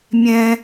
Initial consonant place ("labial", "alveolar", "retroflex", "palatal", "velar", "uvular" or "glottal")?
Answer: labial